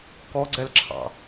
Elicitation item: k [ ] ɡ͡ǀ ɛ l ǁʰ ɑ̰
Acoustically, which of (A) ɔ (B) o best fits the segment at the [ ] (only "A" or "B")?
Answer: A